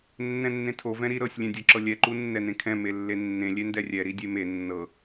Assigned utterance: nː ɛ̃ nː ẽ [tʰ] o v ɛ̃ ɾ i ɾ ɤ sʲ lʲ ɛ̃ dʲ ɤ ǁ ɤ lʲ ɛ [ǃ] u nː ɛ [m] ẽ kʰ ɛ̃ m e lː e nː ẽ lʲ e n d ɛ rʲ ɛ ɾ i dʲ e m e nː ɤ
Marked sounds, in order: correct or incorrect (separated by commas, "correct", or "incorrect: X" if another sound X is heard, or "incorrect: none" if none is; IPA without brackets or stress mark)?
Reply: correct, correct, incorrect: n